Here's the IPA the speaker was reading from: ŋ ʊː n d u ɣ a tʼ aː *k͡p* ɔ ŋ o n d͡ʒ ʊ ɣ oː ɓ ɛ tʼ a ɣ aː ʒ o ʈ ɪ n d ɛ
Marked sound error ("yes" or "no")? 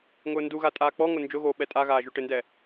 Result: no